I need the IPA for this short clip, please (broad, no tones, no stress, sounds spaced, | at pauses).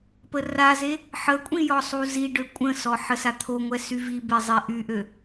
p ə r a z e | ħ ə kʷʼ ĩ j ɔ sˤ u z i ɖ ø kʷʼ ə̃ s ɔ ħ ə s a t̪ʰ o ŋʷ ɛ s y v i b e zˤ e ʔ y ʔ ø